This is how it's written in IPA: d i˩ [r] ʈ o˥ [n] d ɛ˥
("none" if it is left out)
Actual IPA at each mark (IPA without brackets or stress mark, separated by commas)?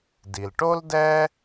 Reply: l, l